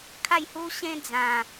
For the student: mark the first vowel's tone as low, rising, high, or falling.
falling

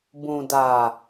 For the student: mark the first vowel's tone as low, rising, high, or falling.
low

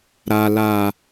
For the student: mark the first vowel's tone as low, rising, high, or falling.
high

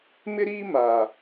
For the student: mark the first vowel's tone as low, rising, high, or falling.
high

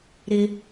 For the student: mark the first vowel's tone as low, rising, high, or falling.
high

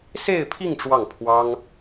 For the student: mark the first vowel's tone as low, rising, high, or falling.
falling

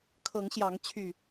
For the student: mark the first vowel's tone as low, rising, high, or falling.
rising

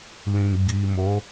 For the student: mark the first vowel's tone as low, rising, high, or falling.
low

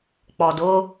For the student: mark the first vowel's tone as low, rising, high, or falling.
low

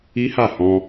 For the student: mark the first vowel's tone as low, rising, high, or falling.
high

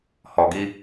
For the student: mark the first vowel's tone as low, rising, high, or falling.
low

